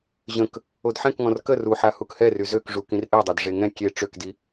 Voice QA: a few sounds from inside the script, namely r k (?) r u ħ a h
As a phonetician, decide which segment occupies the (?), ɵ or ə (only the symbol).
ə